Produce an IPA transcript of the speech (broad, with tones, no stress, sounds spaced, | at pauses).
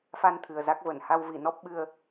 f a˧ n t̪ʰ ɨ˨˩ ə̯ z a˦˥ k̚ v ə˧˩ n h a˧ w v i˧˩ n ɔ˦˥ p̚ ɓ ɨ˧ ə̯